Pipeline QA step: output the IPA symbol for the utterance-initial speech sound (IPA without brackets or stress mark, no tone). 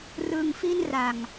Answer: r